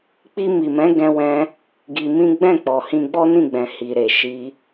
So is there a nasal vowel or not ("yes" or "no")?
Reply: yes